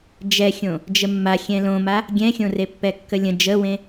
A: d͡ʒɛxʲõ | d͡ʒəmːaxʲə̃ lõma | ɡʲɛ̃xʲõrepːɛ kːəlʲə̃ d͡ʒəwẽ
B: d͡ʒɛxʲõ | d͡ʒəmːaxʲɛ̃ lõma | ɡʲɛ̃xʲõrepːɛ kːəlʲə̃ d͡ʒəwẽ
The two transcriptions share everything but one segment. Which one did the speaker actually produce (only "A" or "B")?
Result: B